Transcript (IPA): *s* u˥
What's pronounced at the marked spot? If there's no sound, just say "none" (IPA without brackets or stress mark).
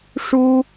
ʂ